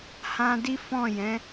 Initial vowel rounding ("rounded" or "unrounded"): unrounded